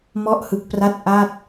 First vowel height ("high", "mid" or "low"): mid